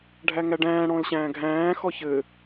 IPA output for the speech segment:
ɖʱæŋæɖæ̃ː ɽɔ̃lɕæ̃ːɡʱæ̃ː xɔçɘ

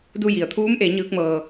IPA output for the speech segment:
du˧ji˩ə̯t̪ʰuː˧˥mʔe˩˧ ɲɯː˧˥k̚mɤː˧

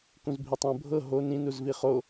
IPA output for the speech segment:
kũzbʱitˤõ bʱɤ ɦo nĩnuzvi χo

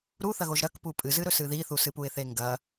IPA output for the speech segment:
ɾuθɐɣoʒ ɾɐkpu pʼɨzɨɾɵs ɨðiθu sɨpuɪ̯θeŋɡɐ

